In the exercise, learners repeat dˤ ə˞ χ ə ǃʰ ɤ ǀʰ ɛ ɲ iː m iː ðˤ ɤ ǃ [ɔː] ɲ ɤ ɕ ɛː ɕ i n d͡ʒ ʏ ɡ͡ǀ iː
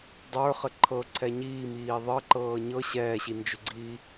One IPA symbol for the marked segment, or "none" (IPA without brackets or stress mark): ɤː